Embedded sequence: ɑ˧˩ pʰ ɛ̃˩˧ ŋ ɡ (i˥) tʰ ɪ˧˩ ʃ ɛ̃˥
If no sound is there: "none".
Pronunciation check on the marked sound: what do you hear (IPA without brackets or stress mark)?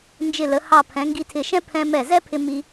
i˧